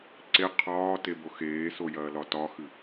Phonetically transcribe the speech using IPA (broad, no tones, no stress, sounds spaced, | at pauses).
ǀ e qʰ ɒː t e b o x eː s o j ɐː l ɒ t ɒ x ɨ